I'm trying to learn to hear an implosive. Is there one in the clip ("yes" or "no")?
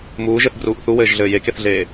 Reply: no